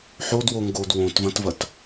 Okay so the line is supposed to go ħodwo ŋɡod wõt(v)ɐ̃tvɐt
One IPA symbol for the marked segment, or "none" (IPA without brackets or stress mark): v